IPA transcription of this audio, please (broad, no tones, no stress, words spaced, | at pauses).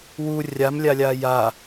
wu rʲamlʲalʲaː ja